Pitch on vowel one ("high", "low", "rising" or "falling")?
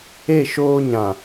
falling